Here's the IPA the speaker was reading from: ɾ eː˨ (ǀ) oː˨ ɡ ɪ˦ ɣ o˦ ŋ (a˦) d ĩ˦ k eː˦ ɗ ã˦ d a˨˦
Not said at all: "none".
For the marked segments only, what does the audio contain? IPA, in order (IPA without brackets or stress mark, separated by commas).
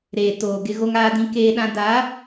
t, aː˦